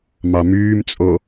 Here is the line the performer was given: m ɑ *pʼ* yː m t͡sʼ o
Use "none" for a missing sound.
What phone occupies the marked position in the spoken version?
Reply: m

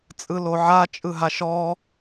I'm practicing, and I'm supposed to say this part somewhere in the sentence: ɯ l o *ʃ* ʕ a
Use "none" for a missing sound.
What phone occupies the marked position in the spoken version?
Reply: none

